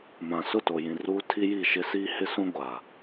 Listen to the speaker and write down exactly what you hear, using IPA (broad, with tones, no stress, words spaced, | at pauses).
mã˨ sʊ˦˨to˨jĩ˨ ruː˦ tʰi˦ji˦˨ ʃɪ˦siː˦hɪ˦sũ˦ ɡʷa˨